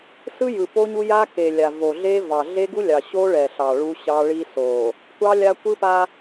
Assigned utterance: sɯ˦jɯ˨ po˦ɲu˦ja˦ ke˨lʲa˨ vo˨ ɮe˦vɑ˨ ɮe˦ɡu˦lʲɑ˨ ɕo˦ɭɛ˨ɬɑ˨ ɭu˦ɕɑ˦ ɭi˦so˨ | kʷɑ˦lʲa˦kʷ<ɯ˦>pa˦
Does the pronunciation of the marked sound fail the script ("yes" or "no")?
no